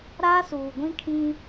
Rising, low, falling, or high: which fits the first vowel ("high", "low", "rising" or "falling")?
high